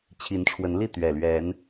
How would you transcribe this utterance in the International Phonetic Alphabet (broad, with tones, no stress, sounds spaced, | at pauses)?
t͡ɕʰ i˨˦ n ʈ͡ʂʰ w ə˨˦ n l i˥˨ t̪ ɥ ɛ˨˩ l ɥ ɛ˨˦ n